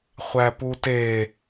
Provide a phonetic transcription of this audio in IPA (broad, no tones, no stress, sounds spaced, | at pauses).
χʷ æ p u t e